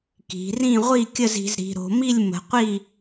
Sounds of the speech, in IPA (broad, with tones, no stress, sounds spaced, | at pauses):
k i̤˩˧ r ĩ˥˨ ʁʷ i˥˨ kʲ ə˥˨ z i̤˩˧ z ɾ i̤˩˧ ɾ o̤˩˧ m i˥˨ lʲ m ə̤˩˧ qʷ i˥˨